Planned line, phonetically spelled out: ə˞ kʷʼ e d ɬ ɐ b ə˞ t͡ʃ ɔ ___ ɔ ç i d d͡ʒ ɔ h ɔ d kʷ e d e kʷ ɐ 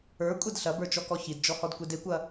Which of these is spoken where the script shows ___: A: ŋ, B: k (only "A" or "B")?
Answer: B